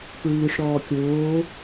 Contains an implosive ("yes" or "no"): no